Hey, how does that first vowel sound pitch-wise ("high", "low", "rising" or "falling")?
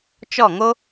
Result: falling